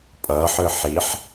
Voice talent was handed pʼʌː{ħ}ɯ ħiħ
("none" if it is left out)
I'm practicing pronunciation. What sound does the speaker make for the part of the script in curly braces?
ħ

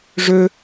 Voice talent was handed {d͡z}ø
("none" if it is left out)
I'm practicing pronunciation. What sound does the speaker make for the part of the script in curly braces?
ʐ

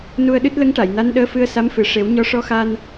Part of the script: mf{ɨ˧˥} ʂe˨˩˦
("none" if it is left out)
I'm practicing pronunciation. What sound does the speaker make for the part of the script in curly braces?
ɨ˨˩˦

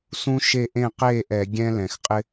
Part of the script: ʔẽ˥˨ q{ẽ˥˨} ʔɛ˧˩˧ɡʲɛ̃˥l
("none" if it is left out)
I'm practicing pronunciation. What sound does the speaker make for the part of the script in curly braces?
e˥˨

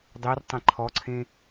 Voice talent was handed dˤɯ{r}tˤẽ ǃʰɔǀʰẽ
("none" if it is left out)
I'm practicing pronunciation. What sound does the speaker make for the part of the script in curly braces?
r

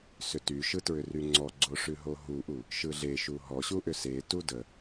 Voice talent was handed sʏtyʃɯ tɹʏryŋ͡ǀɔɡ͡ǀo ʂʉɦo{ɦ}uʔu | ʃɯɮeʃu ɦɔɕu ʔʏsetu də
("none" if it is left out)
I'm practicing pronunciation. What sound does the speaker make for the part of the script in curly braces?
ɦ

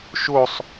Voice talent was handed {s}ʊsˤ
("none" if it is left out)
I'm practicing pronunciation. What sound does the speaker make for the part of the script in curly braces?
ʃ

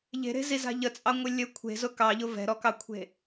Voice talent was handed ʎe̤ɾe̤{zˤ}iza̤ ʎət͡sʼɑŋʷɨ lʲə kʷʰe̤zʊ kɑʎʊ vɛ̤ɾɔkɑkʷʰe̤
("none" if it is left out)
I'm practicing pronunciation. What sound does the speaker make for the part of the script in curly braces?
z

